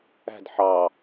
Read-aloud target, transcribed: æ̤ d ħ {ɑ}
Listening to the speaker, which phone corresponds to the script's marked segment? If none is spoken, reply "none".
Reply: ɑ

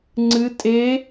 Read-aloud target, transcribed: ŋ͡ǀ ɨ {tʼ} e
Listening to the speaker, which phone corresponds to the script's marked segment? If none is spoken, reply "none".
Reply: tʼ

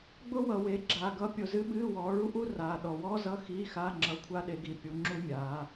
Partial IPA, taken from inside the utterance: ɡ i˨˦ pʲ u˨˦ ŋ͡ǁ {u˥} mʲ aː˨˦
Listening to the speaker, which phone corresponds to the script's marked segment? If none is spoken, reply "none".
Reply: u˥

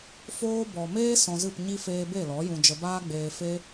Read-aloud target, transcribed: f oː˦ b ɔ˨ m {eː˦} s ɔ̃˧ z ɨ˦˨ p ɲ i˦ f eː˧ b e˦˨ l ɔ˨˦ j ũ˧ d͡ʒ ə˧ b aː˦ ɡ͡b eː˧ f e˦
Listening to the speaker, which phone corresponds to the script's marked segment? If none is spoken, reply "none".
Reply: eː˦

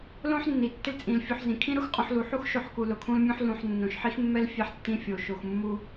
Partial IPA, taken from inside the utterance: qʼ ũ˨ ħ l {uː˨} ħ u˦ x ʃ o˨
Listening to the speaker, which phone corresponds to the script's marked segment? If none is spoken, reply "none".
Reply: u˨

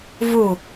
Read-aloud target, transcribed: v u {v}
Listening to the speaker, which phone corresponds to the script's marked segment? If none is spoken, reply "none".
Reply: none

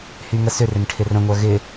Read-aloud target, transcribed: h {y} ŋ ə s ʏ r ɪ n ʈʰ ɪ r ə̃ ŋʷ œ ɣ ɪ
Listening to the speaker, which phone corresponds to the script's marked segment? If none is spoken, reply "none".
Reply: y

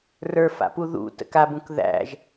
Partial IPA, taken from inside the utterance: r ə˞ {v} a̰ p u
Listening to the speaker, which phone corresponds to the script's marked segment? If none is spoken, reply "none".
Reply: f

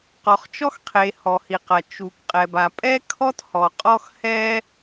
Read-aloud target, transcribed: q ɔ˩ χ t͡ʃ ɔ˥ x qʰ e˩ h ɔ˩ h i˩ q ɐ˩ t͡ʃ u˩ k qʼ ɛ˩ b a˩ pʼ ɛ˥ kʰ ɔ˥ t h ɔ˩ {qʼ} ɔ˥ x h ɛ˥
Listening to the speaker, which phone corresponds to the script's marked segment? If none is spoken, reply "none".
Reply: qʼ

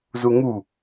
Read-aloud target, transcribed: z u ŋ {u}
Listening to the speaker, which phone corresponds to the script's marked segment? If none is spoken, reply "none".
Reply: u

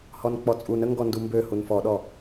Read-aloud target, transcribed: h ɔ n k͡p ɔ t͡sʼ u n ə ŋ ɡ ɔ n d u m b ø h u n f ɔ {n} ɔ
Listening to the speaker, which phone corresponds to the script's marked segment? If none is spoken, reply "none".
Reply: ɗ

